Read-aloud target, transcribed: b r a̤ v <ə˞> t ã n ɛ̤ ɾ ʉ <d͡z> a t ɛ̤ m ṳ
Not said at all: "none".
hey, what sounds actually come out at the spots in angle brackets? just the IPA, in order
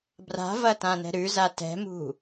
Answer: ɐ, z

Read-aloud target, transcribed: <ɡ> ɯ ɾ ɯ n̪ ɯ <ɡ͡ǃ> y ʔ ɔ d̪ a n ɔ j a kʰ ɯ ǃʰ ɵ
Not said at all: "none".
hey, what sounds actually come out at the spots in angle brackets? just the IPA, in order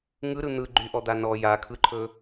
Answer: ŋ, ɡ͡ǃ

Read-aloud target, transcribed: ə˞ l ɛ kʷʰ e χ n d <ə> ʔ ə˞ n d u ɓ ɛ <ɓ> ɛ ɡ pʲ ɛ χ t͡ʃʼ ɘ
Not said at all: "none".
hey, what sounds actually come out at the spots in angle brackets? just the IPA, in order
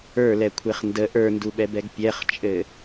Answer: ə, b

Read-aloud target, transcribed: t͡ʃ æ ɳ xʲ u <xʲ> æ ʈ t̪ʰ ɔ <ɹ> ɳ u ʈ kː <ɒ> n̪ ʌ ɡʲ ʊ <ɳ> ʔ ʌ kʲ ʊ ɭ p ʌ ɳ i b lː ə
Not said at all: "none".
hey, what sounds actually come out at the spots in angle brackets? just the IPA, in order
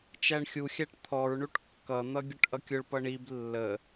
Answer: xʲ, ɹ, ʌ, ʈ

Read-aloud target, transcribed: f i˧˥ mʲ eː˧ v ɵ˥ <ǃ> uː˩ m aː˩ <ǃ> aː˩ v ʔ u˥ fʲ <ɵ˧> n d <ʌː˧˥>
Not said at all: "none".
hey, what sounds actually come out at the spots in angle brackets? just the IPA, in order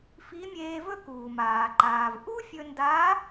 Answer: k, ǃ, ɵ˧, aː˧˥

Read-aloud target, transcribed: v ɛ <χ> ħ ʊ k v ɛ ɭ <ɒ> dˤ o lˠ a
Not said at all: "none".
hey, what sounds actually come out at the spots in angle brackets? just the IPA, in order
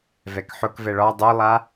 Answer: k, ɒ

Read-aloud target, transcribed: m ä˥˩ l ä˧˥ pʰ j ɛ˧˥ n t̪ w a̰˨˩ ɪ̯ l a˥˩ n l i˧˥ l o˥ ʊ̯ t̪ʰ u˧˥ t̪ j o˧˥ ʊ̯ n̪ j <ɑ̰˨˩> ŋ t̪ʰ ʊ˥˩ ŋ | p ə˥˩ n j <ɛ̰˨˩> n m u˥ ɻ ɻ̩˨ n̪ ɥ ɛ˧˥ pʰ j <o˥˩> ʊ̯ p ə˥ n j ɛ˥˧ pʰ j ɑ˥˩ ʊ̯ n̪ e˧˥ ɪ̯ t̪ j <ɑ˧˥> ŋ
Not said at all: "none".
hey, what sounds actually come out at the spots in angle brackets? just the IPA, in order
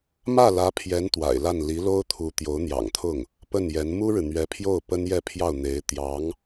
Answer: ɑ̰˨˩, ɛ˧˥, o˥˩, ɑ˧˥

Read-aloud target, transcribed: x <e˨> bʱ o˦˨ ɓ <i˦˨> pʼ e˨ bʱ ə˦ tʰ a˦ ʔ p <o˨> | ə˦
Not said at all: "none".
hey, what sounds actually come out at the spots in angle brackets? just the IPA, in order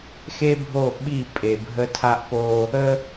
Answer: e˦, i˦˨, o˦

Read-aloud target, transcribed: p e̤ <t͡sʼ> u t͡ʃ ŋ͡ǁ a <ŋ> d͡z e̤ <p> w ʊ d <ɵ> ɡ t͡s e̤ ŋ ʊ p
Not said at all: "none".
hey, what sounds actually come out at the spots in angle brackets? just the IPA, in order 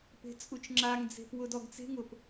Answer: t͡sʼ, ŋ, p, ɔ

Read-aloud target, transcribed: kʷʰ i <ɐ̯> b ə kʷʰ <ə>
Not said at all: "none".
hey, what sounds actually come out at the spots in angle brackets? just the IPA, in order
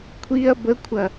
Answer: ɐ̯, ɐ

